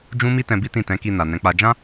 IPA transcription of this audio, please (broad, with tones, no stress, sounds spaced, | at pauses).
d͡ʒ ũ˦ m i˦ t ɛ̃˧ b i˦ t ĩ˦˨ t ɛ̃˨˦ k i˧ n a˨ n ɛ̃˨˦ k͡p a˧ d͡ʒ ã˦